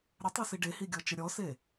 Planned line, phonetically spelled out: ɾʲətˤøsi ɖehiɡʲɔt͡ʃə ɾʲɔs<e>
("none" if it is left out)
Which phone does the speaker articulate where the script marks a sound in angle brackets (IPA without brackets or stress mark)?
e